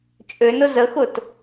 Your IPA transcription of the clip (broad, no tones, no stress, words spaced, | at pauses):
t͡ʃʼønʊ zəxʊt